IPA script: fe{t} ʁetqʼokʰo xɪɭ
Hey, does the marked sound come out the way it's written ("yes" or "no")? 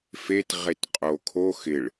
yes